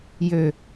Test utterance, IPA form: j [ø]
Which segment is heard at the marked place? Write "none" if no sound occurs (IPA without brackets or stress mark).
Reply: ø